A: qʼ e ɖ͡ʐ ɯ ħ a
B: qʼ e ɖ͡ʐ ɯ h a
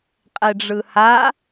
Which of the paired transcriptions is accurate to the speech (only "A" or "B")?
B